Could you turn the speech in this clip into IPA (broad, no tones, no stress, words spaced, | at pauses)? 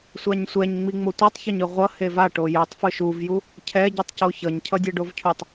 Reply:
sʷaɲsʷɛɲŋ͡mi ŋ͡motʷɛtˤçaɲɯ ʁʷʌ heva ʈojɛtˤ fɯʃuvju | cʰɛ ɟitˤcoçʌɲ cʰʌdʲeɖovcʰutˤ